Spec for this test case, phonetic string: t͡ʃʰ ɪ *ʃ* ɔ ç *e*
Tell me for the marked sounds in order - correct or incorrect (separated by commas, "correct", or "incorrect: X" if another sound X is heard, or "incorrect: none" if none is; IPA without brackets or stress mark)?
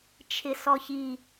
incorrect: s, incorrect: i